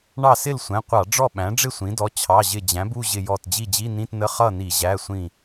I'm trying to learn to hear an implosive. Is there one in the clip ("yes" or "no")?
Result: yes